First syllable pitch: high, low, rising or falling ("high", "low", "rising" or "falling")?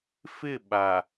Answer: falling